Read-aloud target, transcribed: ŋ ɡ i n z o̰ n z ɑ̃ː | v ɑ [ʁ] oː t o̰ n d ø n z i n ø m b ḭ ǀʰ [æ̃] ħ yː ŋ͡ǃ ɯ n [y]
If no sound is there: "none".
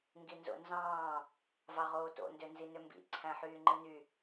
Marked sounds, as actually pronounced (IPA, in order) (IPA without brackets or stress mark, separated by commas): ʁ, æ̃, y